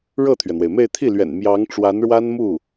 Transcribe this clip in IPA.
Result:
ɻ ɤ˥˩ t̪ʰ ɥ ɛ˩ n̪ w e˩ ɪ̯ m e˥˧ ɪ̯ t̪ʰ i˥˩ l ɥ ɛ̰˨˩ n m j ɑ˧˥ ŋ ʈ͡ʂ w a˧˥ n ɻ w a˥ n m u˥˩

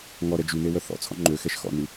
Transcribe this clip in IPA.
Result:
ŋ ɔ ɾ ɛ d͡ʒ y n e w œ θ ɔ̰ t͡sʰ ɔ̰ ŋ͡ǃ ø x ɛ ʃ x ɔ̰ n y

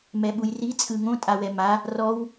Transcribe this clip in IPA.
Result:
m ɛ ɓ u j r i t͡sʼ ɯ ŋ õ tʼ a w ɛ m a | r ɔ w

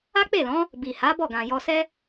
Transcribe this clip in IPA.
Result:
a˦ k͡p e˦˨ l ɔ̃˨˦ | b i˨ h a˨˦ b ɔ˦˨ ɡ ã˨ j ɔ˧ s ɛ˦

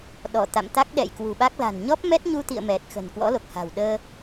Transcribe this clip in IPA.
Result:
ɗ ɔ˧˩ t̪ a̰˧˨ m t̪ a˦˥ k̚ ɗ ɛ̰˧˨ j k w ṳ˨˩ ɓ a˦˥ k̚ l a̤˨˩ n ɲ ɔ˦˥ p̚ m ɛ˦˥ t̚ ɲ u˧ t̪ ḭ˧˨ ə̯ m ɛ˨˩ t̚ x ə̤ː˨˩ n k w ɔ̰˧˥ l o˨˩ k̚ h a̤ː˨˩ w ɗ əː˧

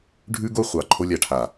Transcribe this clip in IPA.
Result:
ɖʱ ʉ˦ ɡ o˦ χʷ ɑ˨ ǃʰ o˦ lʲ a˨ ʈʰ a˨

